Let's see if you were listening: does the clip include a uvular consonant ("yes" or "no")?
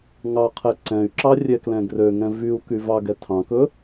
yes